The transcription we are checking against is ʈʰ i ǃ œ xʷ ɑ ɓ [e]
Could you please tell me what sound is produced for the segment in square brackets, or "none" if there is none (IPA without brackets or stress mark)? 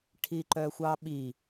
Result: i